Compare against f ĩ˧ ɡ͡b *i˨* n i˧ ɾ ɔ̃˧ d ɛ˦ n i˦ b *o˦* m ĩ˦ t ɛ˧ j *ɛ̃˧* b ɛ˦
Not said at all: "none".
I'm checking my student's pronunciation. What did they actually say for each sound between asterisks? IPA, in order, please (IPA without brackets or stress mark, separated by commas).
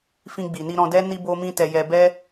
i˨, o˦, ɛ˧